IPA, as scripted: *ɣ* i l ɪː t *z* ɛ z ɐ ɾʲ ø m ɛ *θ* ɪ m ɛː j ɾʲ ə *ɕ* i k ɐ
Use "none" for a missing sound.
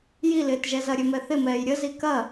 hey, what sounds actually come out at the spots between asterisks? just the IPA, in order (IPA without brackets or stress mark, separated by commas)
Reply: j, ʒ, θ, z